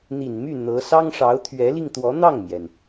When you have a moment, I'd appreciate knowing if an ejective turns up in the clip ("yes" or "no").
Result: no